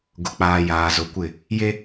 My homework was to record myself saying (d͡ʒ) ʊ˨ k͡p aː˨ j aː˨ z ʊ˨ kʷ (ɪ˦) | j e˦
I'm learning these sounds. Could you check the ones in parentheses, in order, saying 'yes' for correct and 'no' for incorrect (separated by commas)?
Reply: no, no